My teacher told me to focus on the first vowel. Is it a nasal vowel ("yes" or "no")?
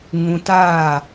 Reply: yes